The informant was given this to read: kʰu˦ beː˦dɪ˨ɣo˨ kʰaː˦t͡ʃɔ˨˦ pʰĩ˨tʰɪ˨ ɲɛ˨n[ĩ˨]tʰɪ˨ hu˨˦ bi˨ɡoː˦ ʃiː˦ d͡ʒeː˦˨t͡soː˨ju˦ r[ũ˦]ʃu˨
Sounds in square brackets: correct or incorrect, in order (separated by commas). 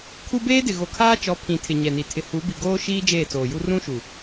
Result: incorrect, correct